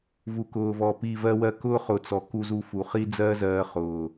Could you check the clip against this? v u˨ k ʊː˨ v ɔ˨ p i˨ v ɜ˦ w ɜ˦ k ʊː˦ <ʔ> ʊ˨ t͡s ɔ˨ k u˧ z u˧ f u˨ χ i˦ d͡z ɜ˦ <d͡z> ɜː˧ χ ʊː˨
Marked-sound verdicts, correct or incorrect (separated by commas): incorrect, incorrect